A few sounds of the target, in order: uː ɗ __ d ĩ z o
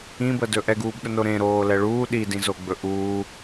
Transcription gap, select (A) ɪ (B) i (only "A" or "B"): B